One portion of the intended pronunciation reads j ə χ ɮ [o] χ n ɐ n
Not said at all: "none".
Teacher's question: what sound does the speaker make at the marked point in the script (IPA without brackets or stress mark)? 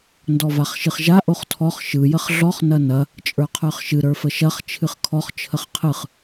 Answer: ɔ